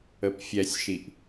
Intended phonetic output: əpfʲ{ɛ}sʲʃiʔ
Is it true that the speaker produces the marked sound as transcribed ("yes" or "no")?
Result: yes